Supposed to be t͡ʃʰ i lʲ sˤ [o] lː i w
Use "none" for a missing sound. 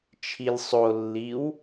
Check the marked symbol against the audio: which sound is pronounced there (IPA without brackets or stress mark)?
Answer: o